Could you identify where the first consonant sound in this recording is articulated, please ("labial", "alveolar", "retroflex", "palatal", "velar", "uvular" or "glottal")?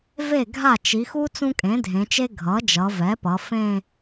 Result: labial